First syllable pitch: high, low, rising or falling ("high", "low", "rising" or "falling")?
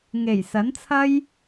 low